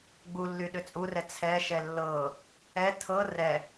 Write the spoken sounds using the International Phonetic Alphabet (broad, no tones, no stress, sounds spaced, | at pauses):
ɡ͡b u lː y ɗ ʏ t͡sʼ u r ɛ t͡sʰ ɛ ʃ ɛ lː ɤ | ɛ tʰ ɤ r ɛ